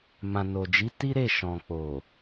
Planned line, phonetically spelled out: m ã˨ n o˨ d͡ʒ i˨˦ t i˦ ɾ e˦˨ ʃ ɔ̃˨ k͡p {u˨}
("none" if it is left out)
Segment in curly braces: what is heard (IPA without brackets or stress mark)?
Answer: o˨